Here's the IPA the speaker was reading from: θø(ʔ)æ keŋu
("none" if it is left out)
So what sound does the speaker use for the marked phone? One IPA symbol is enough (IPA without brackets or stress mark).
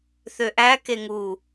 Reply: ʔ